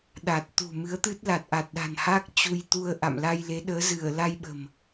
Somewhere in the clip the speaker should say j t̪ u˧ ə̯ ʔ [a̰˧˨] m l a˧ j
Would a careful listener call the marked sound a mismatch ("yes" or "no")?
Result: no